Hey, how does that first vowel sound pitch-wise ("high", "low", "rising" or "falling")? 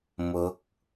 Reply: rising